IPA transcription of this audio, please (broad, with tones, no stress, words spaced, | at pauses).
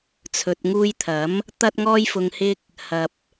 t͡sʰɵ˨t̚ŋuː˧jt̪ʰɐ˨˥m | t̪ɐ˥t̚ŋɔː˥jfʊ˧ŋhɪ˥k̚ | hɐ˨p̚